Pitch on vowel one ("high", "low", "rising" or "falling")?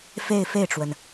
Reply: falling